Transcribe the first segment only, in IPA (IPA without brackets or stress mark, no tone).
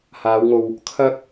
h